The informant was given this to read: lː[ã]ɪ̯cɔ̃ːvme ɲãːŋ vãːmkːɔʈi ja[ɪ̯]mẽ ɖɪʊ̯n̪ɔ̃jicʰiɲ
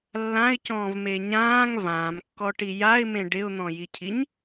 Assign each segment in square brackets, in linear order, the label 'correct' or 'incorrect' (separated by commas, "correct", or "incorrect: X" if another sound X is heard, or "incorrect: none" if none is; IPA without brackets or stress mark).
correct, correct